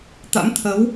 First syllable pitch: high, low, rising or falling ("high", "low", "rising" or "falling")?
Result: rising